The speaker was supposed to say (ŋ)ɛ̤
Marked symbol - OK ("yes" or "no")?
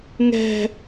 yes